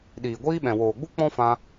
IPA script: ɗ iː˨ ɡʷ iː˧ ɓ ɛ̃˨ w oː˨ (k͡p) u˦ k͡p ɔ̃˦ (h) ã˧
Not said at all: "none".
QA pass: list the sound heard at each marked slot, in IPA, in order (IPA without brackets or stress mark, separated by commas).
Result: ɡ͡b, f